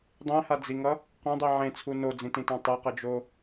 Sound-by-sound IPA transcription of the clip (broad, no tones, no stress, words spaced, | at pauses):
dˤẽhad͡ziŋʌ | qõdˤi ʕẽt͡sʰu nod͡zĩtĩtã tˤeqʌd͡ʒo